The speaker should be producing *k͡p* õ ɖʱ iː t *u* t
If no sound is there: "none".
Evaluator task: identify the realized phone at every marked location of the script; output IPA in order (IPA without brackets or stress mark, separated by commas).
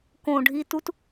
k, u